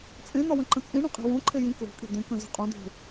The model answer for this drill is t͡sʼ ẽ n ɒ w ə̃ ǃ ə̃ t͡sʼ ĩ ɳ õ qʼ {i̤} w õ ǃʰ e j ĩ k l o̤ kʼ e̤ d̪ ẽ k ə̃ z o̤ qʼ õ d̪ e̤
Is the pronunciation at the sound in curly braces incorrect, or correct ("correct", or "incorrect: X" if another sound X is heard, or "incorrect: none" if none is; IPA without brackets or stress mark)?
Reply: correct